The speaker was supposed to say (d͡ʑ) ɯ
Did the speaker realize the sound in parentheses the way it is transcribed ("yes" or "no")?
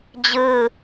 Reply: yes